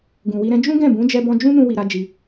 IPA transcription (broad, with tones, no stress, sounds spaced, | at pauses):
ɡ ũ˨ w i˧ ɾ ɛ̃˦ d͡ʒ ũ˦ ɡ ɛ̃˦˨ b ũ˨˦ d͡ʒ ɛ˧ b ɔ̃˧ d͡ʒ ũ˦ n ũ˦ w i˧ ɾ a˦ d͡ʒ i˧